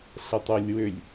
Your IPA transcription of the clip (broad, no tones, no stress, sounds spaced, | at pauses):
ɬ ə tˤ ø lʲ w ʏ lʲ